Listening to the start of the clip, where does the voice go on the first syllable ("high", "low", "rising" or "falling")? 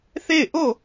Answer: falling